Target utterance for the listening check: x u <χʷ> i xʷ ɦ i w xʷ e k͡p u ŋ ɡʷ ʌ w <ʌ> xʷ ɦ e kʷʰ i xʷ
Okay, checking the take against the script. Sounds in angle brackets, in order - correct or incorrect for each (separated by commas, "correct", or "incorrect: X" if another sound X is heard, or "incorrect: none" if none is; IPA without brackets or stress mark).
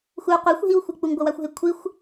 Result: incorrect: qʷ, incorrect: a